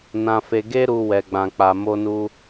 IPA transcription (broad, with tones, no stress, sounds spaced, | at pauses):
n ã˦ f e˦ ɡ e˦ ɾ u˧ w ɛ˧ ɡ͡b ã˧ k͡p a˧ m o˦ n u˦